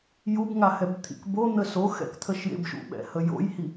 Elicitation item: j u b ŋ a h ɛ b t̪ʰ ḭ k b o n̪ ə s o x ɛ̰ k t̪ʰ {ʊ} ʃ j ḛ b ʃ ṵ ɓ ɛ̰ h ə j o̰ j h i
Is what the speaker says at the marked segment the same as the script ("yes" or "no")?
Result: no